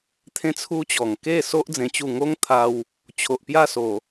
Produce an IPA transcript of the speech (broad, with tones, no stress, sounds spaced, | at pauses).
t̪ʰ ẽ˦ t͡sʰ u˦ t͡ɕ ɔ˨˩ ŋ k e˥˧ s o˦ ʔ d͡z ẽ˧ t͡ɕ u˥˧ ŋ o˦ ŋ t̪ʰ a˧ w | t͡ɕʰ o˨ ʔ p j a˥˧ s o˨˩